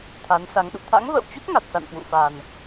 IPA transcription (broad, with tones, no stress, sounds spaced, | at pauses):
t̪ʰ a˨˦ n s a˨˦ ŋ ɗ ṵ˧˨ t̪ʰ a̰˧˥ ŋ v ə̰ː˧˨ w t͡ɕ u˦˥ t̚ ŋ a˨˩ t̚ s a̰˧˨ n k w ṵ˧˨ f a˨˩ n